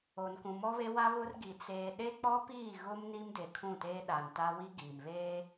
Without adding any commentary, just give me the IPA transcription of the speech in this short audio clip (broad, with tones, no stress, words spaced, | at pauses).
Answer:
o˨nkũ˨mɔ˦βe˦ wa˦βʊ˦rɡi˨ t͡seː˨ɗe˦k͡pɔ˦piː˦˨ ɣʊ˦m ni˦mde˨kʰũ˦˨teː˦ ɗa˨nta˦wi˦ ɡiː˨mβeː˦